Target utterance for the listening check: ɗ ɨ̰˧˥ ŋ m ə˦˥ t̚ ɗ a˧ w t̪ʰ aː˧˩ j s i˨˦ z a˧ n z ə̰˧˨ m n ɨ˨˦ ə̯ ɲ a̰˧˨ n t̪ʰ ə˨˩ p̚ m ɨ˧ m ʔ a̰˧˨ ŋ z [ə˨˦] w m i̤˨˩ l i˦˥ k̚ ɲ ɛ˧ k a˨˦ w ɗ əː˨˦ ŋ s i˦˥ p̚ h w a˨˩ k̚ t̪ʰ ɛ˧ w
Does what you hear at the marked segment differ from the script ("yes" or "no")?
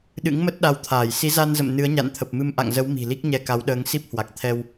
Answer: no